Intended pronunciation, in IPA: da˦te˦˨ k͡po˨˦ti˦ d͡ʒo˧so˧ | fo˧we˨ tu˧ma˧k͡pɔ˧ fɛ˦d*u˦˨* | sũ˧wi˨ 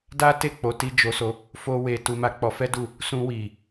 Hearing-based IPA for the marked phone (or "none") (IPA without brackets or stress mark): u˦˨